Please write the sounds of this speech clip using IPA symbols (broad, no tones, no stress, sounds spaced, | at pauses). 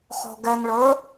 χ ɔ̤ ɡ ɛ ŋ ɭ ə˞